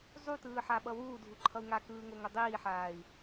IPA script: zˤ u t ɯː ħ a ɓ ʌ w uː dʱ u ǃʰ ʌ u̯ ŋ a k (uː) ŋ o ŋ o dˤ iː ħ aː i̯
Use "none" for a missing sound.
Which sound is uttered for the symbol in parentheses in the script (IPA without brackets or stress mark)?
ɯː